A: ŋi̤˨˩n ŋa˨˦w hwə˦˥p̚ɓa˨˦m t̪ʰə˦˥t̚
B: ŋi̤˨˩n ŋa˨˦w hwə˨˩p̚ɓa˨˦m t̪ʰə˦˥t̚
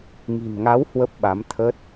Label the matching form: A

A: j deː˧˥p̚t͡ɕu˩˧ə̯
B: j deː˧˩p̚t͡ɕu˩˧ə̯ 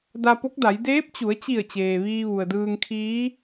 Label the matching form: A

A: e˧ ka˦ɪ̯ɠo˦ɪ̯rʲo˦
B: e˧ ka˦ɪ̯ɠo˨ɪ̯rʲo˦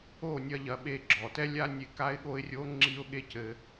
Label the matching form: A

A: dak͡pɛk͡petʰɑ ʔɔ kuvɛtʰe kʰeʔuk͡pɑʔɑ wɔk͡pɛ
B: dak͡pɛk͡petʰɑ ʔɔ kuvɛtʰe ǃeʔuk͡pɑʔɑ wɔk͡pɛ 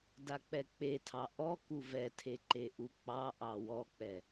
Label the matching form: B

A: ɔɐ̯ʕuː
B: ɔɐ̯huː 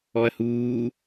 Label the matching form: B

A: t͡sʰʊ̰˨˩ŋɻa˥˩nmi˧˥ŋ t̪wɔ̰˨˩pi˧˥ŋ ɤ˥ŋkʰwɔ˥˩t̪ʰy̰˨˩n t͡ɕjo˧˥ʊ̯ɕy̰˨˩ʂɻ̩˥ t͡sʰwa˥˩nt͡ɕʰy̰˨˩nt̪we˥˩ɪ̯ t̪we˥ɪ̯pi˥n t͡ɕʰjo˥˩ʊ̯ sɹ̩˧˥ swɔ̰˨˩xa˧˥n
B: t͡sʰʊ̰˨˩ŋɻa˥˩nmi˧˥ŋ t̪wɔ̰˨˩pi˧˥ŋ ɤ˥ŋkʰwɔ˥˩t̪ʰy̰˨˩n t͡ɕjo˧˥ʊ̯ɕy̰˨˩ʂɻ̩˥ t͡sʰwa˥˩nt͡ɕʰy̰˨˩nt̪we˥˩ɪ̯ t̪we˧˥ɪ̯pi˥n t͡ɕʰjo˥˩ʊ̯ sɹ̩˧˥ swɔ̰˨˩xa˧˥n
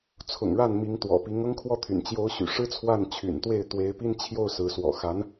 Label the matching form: B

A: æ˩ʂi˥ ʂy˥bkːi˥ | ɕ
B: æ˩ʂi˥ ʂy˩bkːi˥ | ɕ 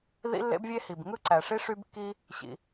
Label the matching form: A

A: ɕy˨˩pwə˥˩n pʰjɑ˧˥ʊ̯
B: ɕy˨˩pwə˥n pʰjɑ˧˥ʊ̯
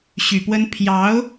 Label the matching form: B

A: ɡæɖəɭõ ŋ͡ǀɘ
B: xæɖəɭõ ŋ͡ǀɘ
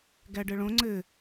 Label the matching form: A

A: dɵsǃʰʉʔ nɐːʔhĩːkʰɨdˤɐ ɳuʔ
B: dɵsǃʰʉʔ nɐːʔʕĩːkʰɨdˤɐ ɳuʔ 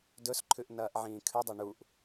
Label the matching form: B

